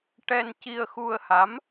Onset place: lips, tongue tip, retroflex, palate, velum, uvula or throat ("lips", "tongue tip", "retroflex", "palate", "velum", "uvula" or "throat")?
retroflex